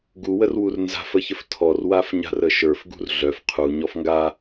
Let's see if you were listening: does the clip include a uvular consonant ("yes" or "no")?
yes